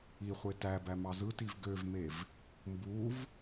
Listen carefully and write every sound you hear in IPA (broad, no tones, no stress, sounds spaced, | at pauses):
i χʷ e t æ b æ m ɑ z ɯ t i v ɡ ø v m e v | m b u v